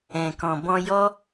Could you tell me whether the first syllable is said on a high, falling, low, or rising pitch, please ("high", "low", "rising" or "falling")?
low